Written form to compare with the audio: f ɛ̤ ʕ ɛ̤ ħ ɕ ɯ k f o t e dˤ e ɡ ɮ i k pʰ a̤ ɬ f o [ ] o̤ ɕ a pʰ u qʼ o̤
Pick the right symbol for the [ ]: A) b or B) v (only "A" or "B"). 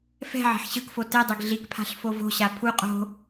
B